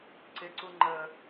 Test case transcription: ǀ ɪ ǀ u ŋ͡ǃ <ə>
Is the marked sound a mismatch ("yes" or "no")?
no